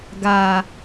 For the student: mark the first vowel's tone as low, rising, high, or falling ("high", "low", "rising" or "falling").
low